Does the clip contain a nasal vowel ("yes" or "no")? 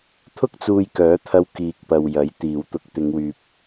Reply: no